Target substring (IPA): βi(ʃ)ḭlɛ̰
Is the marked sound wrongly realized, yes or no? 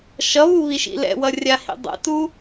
no